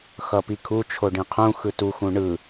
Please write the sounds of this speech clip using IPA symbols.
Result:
x ʌ p i kʰ u t͡ʃʰ o ɖ ĩ qʰ ũ x ɯ t u x ũ ɳ ɯ

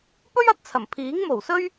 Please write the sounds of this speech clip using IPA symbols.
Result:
p ɵ˥ ɥ ɐ˥ t̚ t͡sʰ ɐ˨˩ m pʰ iː˨˥ ŋ m o˨˩ w s ɵ˥ ɥ

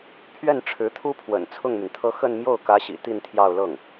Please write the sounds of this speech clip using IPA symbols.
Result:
pʰ ɥ ɛ˥˩ n ʈ͡ʂʰ ɻ̩˧˥ t̪ʰ u˥ pʰ w ə̰˨˩ n t͡sʰ ʊ˥˩ ŋ m y˩ n t̪ʰ ɤ˥˧ x ə˥˧ n m j o˥˩ ʊ̯ k ä˧˥ ɕ ḭ˨˩ t̪ i˥˧ n t̪ʰ j ɑ˥˧ ʊ̯ l ɤ˥˩ ŋ

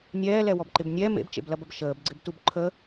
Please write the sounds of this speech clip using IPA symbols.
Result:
nʲ ɛː l ɛ w ɔ b ǃ ɪ b nʲ ɛ m ḛ b t͡ʃ ḛ b l ɐ b ɐ b ʃ əː b ɡ͡ǀ ɪ b t u b ǃʰ ə

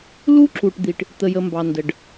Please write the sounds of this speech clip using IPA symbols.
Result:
l u˦ ǁ u˨ ʈ d̪ i˨ ʈ | t̪ ə˨ j ə˨ m b ɑ˨ n d ə˨ ɖ

